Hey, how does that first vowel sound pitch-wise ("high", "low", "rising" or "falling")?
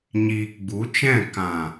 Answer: low